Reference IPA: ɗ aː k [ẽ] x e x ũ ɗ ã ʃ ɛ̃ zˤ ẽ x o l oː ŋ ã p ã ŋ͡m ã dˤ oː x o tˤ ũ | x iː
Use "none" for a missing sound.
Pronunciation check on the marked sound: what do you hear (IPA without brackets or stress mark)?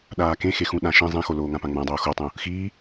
ẽ